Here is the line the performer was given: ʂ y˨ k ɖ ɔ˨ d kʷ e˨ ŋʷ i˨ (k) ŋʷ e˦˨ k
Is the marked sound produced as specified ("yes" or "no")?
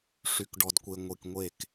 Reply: yes